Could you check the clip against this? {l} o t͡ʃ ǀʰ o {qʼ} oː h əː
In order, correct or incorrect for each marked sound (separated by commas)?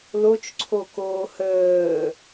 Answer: correct, incorrect